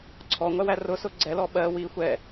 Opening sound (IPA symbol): ǀʰ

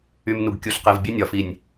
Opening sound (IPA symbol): y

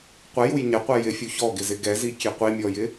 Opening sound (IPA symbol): qʷ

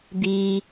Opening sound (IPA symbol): d̪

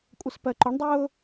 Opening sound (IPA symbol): kʷʼ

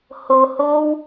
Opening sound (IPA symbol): h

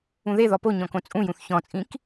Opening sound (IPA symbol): ũ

